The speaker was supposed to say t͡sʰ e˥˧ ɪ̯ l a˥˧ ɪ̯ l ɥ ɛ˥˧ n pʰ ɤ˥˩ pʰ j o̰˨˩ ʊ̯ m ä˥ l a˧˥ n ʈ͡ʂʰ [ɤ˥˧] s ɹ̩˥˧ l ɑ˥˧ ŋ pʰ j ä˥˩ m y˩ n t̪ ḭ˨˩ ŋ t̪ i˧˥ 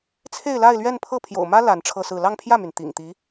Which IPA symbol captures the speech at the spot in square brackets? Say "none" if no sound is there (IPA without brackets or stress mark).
ɤ˥˧